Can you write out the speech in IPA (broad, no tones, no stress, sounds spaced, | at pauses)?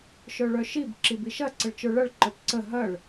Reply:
ʃ œ ɭ œ ʃ i b ǁ i b i ʃ ɐ ǀ ə ɭ t͡ʃ ə˞ ɭ ɐ ɭ ǃ œ p ǀ ə ɦ ɐ ɭ